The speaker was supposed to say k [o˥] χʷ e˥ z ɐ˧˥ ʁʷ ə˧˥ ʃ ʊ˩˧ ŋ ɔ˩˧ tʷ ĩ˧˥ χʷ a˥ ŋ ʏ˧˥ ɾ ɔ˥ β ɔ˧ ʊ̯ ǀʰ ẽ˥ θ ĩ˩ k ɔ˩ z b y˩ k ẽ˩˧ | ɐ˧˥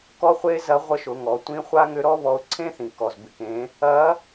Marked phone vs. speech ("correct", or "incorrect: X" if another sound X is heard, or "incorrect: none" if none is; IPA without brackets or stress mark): incorrect: ɔ˥